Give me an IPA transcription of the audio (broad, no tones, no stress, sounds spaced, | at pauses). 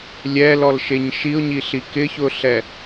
lʲ ɛ l ɔ l ʃ e ɲ ʃ i ʊ̯ ɲ i ɬ i k ɪ ç ʊ ɬ ɛ